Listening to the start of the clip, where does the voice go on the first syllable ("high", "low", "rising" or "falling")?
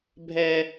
high